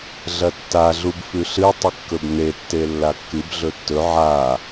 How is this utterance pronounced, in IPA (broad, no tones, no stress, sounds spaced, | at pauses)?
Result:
ɮ ɐ tː a ɮ u b f ʉ ɬ ɨ tˤ ɨ kː ɵ b n e tː e lː a kː ɨ b ɮ ɵ tː ɵ ʕ a